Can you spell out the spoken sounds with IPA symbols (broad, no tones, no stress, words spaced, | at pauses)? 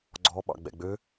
ɡ͡ǀɔ ɓɑ̰ɡ͡bɛ̰ɡ͡bø